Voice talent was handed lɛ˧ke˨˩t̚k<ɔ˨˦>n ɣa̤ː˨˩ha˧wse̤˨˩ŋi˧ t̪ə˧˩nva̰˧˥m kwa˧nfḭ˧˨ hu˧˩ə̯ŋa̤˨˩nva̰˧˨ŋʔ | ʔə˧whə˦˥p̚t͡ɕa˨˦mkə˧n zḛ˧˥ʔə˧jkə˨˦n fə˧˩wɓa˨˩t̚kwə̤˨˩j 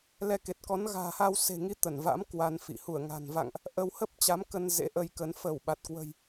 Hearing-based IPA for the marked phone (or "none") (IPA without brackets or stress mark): ɔ˨˦